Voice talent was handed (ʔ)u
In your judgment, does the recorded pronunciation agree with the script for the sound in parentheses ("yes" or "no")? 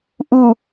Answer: yes